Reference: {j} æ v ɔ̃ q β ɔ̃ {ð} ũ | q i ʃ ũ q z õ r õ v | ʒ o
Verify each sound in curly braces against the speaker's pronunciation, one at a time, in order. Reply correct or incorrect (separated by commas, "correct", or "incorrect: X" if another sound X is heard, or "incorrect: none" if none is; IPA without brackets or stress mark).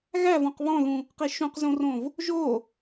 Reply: incorrect: ɣ, correct